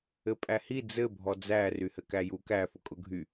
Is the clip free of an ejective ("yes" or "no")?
no